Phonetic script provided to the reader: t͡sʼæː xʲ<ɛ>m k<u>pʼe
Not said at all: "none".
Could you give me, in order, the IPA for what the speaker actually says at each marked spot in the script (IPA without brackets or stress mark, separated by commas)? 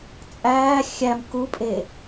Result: æ, u